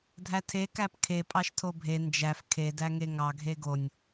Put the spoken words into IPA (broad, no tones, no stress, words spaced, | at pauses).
dʱætʰe kæpkʰe pʼɑʃtʰobʱe nd͡ʒæf kʰe dæŋeŋɑ ɡʱeɡonʲ